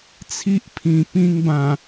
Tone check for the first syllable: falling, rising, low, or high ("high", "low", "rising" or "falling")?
high